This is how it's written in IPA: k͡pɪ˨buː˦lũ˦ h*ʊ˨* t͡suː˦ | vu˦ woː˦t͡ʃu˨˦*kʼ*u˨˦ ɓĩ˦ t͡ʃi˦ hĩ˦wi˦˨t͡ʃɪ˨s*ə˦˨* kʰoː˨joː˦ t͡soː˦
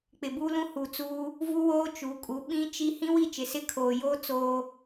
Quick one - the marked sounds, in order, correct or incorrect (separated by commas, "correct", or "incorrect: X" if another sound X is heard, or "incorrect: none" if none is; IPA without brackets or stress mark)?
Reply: incorrect: u˨, correct, incorrect: ɪ˦˨